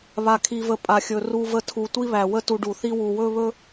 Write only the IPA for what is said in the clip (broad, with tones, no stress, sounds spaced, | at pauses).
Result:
β a˧ kʰ i˧ v ə˧ pʼ a˨ xʲ ɵ˨ r u˧ v ə˧ tʰ u˨ tʷ i˦ β æ˨ w ə˦ t u˧ ɖ u˨ θ i˦ w u˨ w ɵ˦ β ɵ˦